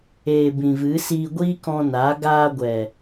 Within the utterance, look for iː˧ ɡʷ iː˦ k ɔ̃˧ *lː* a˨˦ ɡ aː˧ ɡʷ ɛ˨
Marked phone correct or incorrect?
incorrect: n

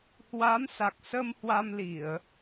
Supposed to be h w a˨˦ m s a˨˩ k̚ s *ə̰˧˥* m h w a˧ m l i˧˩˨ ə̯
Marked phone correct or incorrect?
incorrect: ə˧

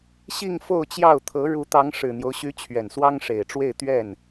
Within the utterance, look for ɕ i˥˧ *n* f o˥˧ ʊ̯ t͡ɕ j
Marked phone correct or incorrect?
incorrect: ŋ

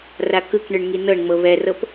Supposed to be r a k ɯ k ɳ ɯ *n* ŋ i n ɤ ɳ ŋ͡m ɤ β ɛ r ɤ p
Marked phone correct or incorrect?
incorrect: ɳ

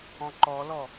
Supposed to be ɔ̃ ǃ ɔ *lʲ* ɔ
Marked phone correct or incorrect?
incorrect: l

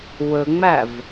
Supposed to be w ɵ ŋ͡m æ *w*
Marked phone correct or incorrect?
incorrect: v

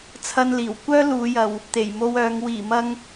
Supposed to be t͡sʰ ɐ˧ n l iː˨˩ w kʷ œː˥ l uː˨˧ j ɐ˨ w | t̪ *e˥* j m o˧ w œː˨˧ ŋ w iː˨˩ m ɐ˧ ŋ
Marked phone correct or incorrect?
incorrect: e˨˩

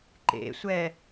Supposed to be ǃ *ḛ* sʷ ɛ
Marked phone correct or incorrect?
correct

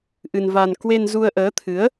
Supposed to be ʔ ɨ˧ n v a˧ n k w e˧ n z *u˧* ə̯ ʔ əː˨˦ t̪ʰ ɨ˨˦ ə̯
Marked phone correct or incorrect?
correct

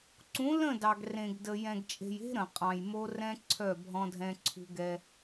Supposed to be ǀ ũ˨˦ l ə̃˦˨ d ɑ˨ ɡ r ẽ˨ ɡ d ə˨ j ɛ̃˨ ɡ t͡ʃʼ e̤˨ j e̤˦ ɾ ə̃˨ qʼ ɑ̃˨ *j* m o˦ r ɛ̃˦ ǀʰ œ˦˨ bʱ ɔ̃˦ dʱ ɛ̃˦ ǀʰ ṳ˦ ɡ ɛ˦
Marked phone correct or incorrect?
correct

